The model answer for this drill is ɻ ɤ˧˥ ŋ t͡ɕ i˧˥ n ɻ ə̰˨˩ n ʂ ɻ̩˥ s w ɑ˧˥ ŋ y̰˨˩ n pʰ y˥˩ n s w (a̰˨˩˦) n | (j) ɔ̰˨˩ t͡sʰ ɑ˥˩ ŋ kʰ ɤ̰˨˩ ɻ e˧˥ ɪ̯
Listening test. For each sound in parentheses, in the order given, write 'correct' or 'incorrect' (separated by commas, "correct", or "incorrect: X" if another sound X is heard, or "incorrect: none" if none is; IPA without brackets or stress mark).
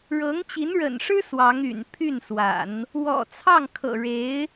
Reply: correct, incorrect: w